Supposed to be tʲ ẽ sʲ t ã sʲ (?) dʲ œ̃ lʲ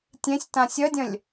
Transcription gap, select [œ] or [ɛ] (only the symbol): œ